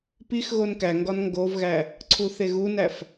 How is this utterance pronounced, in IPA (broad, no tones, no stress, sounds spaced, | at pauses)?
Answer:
p i x ɣ o n k æ ŋ ɡ ɒ n ŋ ɡ o v ɣ æ | ǀʰ u θ e ɣ u n æ f